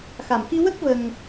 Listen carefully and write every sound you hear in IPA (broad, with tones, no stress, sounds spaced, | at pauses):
x a˨˩ m x i˧ w ə˦˥ k̚ v ə˧ ŋ